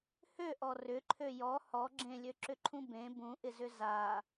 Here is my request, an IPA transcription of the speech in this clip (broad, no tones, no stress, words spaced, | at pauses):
høʔɔ rʏǃʰø jɔ hɔ ɡ͡ǁẽlʲøǁʏǃʰũ bẽ bũʔɪzʏ za